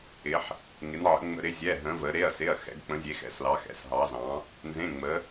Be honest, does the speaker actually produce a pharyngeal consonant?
yes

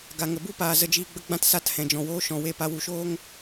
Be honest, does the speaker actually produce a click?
no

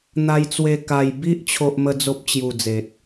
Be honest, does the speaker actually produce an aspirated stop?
yes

